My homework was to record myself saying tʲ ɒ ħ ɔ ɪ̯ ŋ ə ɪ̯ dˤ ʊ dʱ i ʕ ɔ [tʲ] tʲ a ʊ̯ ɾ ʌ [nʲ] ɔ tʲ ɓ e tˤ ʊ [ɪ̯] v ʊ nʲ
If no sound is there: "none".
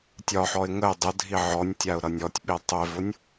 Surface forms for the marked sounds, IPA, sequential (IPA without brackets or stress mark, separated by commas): nʲ, nʲ, ɪ̯